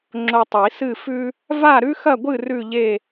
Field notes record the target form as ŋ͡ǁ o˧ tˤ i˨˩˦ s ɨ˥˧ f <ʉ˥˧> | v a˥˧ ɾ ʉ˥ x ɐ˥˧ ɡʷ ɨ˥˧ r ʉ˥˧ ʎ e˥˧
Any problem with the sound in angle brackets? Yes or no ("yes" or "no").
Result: yes